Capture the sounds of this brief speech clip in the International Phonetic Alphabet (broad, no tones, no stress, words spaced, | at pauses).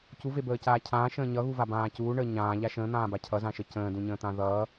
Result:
cuvebəːcaː cʰãːʃə̃ː ɲʌɣuvabãː cuːɳəː ɲãːʎa ʃə̃ːn̪ãːba cʰʌzãʃə cə̃ːdũɲə̃ːt̪ã ðʌː